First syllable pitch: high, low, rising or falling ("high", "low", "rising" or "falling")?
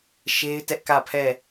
high